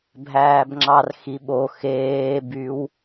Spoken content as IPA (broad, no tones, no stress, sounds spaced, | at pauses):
bʱ æː b ŋ͡ǁ ɑ r x i ɓ o x eː b y w